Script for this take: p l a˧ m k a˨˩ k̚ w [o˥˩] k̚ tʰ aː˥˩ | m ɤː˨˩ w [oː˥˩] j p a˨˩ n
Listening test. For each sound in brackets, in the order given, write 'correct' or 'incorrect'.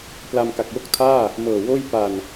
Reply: correct, correct

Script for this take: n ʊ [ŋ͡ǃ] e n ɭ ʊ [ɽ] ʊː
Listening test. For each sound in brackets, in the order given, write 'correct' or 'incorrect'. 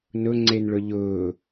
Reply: incorrect: ŋ͡ǀ, incorrect: ʎ

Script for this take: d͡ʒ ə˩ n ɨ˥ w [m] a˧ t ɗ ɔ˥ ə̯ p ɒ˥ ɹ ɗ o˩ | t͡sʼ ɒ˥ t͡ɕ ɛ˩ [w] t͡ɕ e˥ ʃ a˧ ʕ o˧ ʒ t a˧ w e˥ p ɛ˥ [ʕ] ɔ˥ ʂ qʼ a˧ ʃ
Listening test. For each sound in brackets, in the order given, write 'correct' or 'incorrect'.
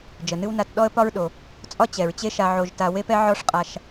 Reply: incorrect: n, incorrect: ɹ, correct

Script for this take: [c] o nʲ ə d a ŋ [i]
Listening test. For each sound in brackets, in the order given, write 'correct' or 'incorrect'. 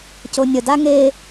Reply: correct, incorrect: e

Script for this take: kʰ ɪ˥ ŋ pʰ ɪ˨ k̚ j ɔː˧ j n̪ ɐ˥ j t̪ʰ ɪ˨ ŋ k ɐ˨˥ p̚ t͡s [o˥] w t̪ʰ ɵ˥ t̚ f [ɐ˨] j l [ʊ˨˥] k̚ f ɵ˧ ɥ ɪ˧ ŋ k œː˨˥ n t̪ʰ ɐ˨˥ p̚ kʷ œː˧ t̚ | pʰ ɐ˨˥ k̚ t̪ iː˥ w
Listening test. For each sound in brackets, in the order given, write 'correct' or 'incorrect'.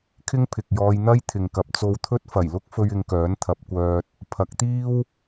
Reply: incorrect: o˧, incorrect: ɐ˨˩, incorrect: ʊ˥

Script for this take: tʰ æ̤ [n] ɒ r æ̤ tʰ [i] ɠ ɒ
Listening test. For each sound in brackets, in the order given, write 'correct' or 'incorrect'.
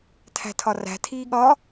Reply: incorrect: tʰ, incorrect: iː

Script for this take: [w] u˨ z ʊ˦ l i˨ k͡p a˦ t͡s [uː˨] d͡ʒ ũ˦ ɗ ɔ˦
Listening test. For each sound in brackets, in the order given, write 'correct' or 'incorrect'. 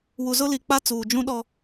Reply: correct, correct

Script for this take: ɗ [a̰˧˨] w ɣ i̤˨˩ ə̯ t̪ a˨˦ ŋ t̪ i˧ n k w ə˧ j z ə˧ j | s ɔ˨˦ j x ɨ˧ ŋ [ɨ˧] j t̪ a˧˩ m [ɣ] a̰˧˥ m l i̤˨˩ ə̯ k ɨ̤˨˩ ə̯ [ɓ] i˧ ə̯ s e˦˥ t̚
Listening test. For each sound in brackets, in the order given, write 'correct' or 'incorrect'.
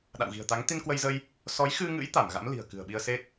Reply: correct, incorrect: ɨ̰˧˥, correct, correct

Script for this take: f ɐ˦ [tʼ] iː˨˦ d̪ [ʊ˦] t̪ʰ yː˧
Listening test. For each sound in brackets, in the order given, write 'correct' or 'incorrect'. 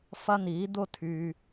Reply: incorrect: n̪, correct

